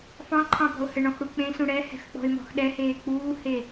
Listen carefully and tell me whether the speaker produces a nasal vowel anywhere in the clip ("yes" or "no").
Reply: yes